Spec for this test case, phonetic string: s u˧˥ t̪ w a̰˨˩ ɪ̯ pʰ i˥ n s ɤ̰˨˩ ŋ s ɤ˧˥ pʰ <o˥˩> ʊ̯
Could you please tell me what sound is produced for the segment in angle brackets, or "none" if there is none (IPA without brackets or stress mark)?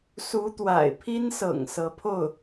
o˥˩